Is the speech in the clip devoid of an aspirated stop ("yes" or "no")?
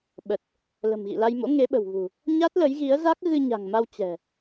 yes